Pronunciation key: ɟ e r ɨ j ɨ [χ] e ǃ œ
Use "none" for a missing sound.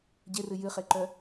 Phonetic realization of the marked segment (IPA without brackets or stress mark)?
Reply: χ